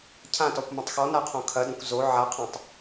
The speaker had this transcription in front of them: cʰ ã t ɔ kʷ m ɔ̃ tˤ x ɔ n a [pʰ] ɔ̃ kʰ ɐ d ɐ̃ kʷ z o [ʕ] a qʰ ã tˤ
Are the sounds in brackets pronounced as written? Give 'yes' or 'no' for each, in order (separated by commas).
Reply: no, yes